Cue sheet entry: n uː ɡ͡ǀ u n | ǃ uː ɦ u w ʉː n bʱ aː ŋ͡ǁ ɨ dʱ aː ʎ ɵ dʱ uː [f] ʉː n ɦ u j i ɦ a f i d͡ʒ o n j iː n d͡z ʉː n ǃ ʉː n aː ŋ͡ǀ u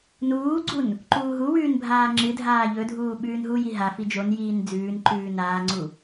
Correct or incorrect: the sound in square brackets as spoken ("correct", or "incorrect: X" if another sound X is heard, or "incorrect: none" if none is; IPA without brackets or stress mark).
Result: incorrect: ɓ